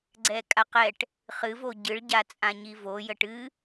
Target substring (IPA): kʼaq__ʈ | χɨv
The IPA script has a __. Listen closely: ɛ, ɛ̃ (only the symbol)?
ɛ